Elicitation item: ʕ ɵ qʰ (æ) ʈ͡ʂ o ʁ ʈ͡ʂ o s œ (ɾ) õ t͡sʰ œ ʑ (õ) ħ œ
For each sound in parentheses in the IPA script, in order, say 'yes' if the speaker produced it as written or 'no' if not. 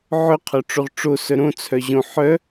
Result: no, yes, yes

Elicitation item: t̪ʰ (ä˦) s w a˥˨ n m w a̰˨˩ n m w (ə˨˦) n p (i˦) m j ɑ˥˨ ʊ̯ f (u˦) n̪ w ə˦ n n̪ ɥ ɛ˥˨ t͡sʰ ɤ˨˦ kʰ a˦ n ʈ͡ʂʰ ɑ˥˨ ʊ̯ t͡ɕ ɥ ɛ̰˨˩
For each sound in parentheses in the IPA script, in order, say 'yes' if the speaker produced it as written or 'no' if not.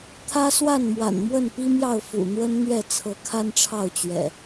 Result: yes, no, yes, no

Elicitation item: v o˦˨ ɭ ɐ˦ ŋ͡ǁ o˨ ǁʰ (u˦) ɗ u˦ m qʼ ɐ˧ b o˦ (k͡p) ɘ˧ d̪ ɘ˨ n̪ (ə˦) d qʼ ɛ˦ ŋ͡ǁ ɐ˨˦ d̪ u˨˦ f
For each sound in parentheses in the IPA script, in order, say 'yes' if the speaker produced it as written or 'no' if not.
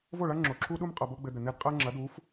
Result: yes, no, no

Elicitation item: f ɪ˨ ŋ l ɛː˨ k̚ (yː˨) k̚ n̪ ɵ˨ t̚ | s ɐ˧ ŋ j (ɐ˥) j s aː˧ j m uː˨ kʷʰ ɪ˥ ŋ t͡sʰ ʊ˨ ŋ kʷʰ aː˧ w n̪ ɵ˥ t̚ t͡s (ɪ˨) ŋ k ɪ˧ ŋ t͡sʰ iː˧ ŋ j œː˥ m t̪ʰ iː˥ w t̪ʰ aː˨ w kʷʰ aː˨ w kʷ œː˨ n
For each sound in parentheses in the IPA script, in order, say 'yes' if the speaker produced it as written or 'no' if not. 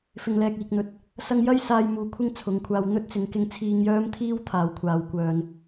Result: no, yes, yes

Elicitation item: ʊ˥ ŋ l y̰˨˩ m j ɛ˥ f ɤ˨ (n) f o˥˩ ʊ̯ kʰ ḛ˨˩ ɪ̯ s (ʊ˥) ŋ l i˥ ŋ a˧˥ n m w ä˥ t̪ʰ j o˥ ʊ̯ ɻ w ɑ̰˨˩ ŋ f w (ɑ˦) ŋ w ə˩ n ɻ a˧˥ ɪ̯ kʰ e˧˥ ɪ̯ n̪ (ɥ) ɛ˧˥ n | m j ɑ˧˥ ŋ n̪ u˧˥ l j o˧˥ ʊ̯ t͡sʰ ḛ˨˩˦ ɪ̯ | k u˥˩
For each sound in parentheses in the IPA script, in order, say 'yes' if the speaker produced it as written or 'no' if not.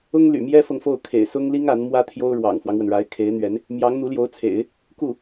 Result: no, yes, yes, yes

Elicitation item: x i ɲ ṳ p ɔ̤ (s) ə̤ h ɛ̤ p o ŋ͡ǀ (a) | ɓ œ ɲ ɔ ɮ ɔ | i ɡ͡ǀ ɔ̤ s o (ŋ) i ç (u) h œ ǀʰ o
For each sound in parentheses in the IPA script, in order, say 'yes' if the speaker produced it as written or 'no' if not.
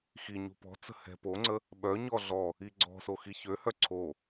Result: no, no, no, no

